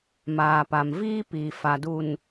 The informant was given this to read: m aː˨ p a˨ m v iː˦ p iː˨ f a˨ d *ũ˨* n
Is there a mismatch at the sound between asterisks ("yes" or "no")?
yes